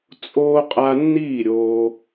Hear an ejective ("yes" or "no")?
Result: yes